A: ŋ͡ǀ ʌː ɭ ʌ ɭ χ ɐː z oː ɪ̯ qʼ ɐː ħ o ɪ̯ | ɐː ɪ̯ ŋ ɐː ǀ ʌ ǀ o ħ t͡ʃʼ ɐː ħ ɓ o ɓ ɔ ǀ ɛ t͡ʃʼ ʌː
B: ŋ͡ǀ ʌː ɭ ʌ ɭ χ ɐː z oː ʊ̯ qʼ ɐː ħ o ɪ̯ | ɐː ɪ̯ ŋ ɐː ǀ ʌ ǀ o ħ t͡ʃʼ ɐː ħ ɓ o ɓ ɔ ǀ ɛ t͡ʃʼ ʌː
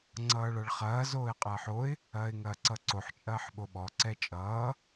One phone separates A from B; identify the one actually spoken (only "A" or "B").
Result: A